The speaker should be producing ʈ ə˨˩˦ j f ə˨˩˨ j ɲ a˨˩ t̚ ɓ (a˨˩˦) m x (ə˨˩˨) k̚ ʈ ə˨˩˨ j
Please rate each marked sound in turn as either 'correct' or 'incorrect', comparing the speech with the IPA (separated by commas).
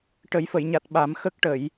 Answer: correct, incorrect